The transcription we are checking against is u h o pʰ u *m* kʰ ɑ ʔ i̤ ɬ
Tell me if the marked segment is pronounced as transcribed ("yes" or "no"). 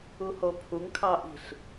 no